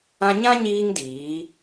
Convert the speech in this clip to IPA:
ã˧ ɲ ã˦ ɲ iː˧ ŋ d iː˨˦

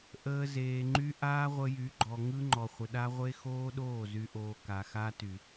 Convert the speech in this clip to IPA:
ʔ əː˧ z eː˨ ŋ͡ǃ y˦ ʔ aː˦ ʁʷ ə˧ j y˨˦ ɡ͡ǃ ɔ˨ ŋ ɯ˦ ŋ͡ǃ ɔ˨ χʷ ə˨ ɗ a˦ ʁʷ e˦ x oː˦ ɗ oː˦˨ z y˧ ʔ oː˧ k a˨ x a˦ t y˨

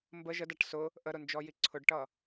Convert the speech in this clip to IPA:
m b ə ʒ ə d a ʈ s ʊ | ʔ ə ɾ ʊ n d͡ʒ ɔ j i ǀʰ ʊ ɖ ʈ ʌ

